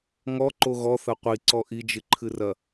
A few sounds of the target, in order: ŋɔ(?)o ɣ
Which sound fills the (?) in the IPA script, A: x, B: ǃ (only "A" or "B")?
B